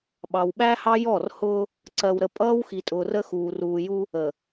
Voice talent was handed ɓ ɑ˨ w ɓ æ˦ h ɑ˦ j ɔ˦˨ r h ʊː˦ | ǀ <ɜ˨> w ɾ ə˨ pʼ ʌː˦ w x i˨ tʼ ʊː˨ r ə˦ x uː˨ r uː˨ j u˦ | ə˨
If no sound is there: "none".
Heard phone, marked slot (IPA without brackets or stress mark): ɜ˨